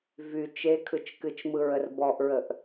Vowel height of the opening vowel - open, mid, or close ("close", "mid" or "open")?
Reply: close